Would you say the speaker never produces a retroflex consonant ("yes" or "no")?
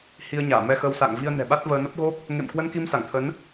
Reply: yes